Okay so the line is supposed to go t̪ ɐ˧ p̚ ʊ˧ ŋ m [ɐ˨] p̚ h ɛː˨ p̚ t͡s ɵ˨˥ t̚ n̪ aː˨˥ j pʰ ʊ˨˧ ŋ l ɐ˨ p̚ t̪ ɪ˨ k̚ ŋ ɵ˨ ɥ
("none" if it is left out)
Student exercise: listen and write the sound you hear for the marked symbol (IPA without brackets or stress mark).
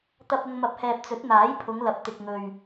ɐ˨